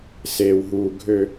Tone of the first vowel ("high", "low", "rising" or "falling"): low